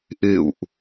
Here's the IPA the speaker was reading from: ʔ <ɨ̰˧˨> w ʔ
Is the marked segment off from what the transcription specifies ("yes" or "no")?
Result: no